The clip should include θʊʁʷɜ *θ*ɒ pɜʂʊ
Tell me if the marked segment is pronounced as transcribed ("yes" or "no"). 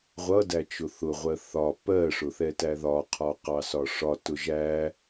yes